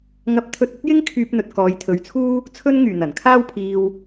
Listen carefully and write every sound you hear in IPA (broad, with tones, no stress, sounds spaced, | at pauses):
ŋ ɐ˧ p̚ t̪ʰ ɵ˧ t̚ ɐ˥ t̚ j ɪ˥ ŋ kʰ yː˧ p̚ n̪ ɵ˨ t̚ k ɔː˨˧ j t̪ʰ ɵ˨˧ ɥ t͡sʰ uː˥ | t͡sʰ ɵ˧ n ŋ yː˨˩ n̪ ɐ˨˩ n kʰ aː˥ w pʰ iː˧ w